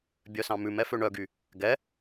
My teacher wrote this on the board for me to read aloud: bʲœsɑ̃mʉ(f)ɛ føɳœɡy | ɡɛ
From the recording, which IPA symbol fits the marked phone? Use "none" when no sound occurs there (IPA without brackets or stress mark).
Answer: m